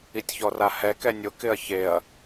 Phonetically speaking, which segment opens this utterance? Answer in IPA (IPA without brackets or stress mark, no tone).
i